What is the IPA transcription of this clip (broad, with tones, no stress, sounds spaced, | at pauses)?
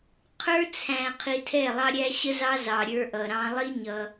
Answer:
qʰ ə˞˦ t͡sʰ æ̃˧ qʰ i˧ tʰ ɛ˦˨ lˠ ɑ˦ ɾʲ æ˦ ɕ ə˦ z ɑ˦ z ɑ˧ ɾʲ ə˞˦ ʔ ʌ˧ ɾ ɑ̃˦ lˠ i˦ ɲ ʌ˧